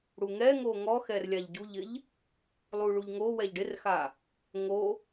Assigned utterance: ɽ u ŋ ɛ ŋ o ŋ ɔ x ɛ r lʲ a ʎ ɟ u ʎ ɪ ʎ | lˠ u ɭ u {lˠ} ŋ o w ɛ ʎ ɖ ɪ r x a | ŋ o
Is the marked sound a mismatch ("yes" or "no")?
yes